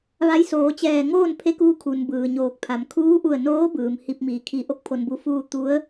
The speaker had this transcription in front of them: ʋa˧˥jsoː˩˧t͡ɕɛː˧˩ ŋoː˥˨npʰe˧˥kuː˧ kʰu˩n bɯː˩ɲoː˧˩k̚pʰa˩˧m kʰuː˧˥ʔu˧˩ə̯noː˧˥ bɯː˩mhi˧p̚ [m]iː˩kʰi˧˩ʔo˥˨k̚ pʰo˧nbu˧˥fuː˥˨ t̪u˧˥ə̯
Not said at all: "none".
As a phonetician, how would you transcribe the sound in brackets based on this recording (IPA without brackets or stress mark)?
m